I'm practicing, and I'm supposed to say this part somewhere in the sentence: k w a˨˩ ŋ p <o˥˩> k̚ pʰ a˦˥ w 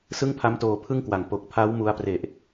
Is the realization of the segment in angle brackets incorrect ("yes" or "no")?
yes